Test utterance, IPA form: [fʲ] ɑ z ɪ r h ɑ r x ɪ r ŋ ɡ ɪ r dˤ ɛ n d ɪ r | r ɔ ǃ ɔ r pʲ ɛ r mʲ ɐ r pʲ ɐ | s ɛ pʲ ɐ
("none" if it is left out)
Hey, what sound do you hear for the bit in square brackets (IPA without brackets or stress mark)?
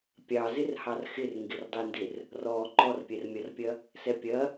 pʲ